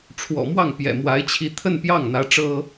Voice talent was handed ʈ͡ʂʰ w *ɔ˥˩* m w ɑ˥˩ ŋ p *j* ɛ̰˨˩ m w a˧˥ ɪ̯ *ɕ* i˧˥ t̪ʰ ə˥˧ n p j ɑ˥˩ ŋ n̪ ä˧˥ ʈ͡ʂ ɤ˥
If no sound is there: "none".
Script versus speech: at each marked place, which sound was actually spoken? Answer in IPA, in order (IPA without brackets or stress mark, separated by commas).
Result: ɔ̰˨˩, j, t͡ɕʰ